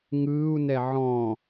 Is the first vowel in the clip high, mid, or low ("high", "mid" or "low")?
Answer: high